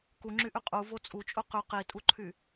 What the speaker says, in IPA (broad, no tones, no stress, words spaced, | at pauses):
kuŋ͡ǁyʔy qʼuvo t͡sʼut͡ʃʼu qy qitʼuǃʰy